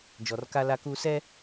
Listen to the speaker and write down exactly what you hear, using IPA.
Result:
d͡ʒ ɔ˨ r k a˦ l a˦ k uː˦ s ɛ˦

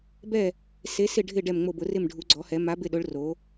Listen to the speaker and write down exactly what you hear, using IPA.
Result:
b ɛ˦˨ | s e˨˦ s ɪ˦˨ ɖʱ ɪ˦˨ ɖ ɛ˦˨ m ŋ͡m o˦˨ b ʊ˨˦ r ɪ˦˨ m ɖʱ u˨˦ ɡ͡ǀ ɔ˨˦ h ɛ˨˦ m a˨˦ b ɪ˦˨ ɗ ʊ˨˦ ɭ r o˨˦

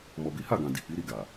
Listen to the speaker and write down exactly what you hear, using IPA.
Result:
m ɔ˨ b i˨˦ h a˦˨ ɡ ã˨ d i˨ k͡p i˨˦ ɾ i˦˨ ɡ a˨

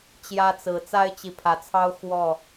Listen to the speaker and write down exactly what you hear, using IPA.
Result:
t͡ɕ j ä˦ t͡s ɹ̩˨˦ t͡s a˦ ɪ̯ t͡ɕ i˨ pʰ ä˨˦ t͡sʰ ɑ˦ ʊ̯ x w ɔ˥˨

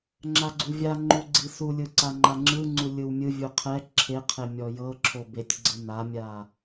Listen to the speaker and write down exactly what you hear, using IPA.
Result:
ŋ͡ǁ a ɡ͡ǀ u vʲ a ŋ͡ǃ u ɡ͡ǀ i s u lʲ ɯ ǀ a ŋ͡ǃ a ŋ͡ǁ ɯ ŋ͡ǀ u lʲ ɯ w mʲ ɯ vʲ u qʰ ɛ ǁʰ e qʰ e mʲ ɔ j ɤ ǁʰ o b e tʲ ɡ͡ǀ ɯ n a mʲ a

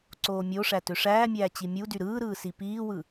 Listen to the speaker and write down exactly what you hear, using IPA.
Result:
ǀ oː mʲ o ʂ æ t ø ʂ æː mʲ æː t͡ɕ i mʲ u d y ɾ ɯː ɾ ɯː s i p iː w ɯ

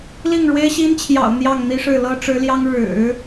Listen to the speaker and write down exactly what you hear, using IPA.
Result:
l i˥˩ ŋ ɻ w e˥ ɪ̯ ɕ i˥ n t͡ɕʰ j ɑ̰˨˩ ʊ̯ n̪ j ɑ˥˩ ŋ n̪ i˥ ʂ ɻ̩˥˩ l ɤ˥ ʈ͡ʂ ɻ̩˧˥ l j ɑ˥ ŋ ɻ ɻ̩˨˩˦

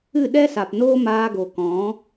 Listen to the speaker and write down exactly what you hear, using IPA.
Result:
ɨ˦˨ ɗ ɛ˦ s a˨ p n oː˦ m aː˧ ɡ o˨ k ɔ̃˨˦

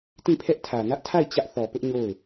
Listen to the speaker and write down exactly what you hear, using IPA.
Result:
t ĩ˦˨ pʰ ɛ˦ ʔ tʰ ä˨ n ä˦ ʔ tʰ a˦˨ ɪ̯ t͡ɕ ä˦ ʔ θ ɔ˨ p ʊ˦ ʔ ɲ o˦˨ ʊ̯

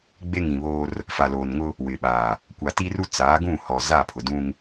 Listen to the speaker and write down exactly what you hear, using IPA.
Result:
ɡ͡b e˦ ŋ ĩ˨ β oː˦ r | f a˨ l oː˨ n ŋ ʊ˦ | w ɪ˨ ɓ aː˨ | kʷ a˨ t i˦ r u˦ t͡s aː˨˦ ɡ ũ˦˨ h ɔ˨ z a˦˨ pʰ ʊ˨ d ũ˦ ŋ

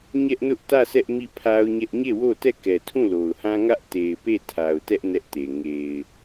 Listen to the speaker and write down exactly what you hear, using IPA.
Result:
ɲ ɛ˦ ʔ n ʊ˦ ʔ t ä˦˨ s ɛ˦ ʔ m i˦˨ pʰ a˦ ʊ̯ ɲ ɛ˦ ʔ ɲ e˦˨ w o˦˨ t ɛ˦˨ k ɛ˨ tʰ ũ˦˨ l o˨ ʊ̯ h ã˦ ŋ ä˦ ʔ t e˨ ɪ̯ p e˦˨ tʰ a˨ ʊ̯ t ɛ˦ ʔ n ɛ˦ ʔ t e˨ ŋ e˨ ɪ̯

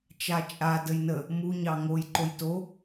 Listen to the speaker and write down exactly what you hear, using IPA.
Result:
t͡ʃ a t͡ʃʼ a d ə j n ə | m u ɲ ɑ ŋ o j ǃ o j t o

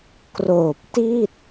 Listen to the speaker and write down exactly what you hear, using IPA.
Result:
k r oː˨˩ p̚ t i˥˩ t̚

